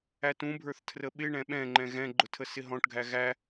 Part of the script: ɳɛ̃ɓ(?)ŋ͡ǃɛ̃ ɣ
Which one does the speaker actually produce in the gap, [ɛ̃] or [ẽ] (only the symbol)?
ɛ̃